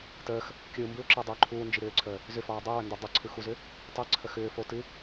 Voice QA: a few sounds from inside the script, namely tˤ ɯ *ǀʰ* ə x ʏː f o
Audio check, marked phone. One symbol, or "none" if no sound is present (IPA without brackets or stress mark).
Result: ǀʰ